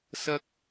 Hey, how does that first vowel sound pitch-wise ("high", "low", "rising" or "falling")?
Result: high